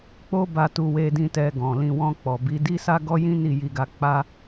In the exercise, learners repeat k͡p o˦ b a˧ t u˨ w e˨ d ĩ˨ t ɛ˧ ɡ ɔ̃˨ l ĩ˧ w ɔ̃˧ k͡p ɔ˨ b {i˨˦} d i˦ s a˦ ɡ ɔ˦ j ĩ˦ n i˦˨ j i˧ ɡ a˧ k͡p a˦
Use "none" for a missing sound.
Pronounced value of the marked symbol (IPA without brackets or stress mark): i˨˦